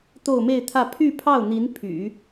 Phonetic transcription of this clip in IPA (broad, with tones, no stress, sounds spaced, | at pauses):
t̪ o˥˧ ʊ̯ m e˥˧ ɪ̯ t̪ʰ ä˥˧ pʰ y˥˧ pʰ ɑ˥˩ ʊ̯ n̪ i˧˥ n pʰ y̰˨˩˦